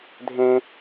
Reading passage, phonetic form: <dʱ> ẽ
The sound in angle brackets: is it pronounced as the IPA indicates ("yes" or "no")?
yes